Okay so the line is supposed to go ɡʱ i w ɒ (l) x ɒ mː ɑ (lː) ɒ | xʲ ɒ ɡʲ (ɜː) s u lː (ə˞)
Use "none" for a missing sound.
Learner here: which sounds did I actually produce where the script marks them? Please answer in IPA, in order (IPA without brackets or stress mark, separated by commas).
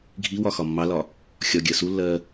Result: none, l, ɜ, ɜ